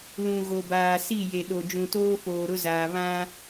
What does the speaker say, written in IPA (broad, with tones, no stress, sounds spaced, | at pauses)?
l ũ˨ ɣ o˨ b aː˨ s i˦˨ j e˨ ɗ o˨ d͡ʒ ũ˨ t oː˦ f oː˨ ɾ ʊ˦ z aː˨ β ã˦